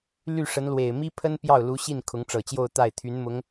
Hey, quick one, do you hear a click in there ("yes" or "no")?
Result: no